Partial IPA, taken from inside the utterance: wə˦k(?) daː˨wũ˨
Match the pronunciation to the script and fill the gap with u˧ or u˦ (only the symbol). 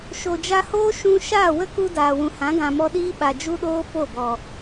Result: u˧